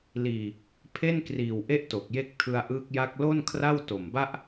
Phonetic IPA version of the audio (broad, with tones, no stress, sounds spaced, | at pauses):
l iː˨˩ | pʰ e˥˩ n k r iː˨˩ w ʔ e˥˩ ʔ t o˨˩ k̚ j e˦˥ k̚ tʰ ɯ˧ a̯ ʔ ɯː˦˥ k̚ j a˥˩ k̚ l o˥˩ n kʰ r a˥˩ w t o˨˩ m b a˥˩ ʔ